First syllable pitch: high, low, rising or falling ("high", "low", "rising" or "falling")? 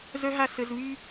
high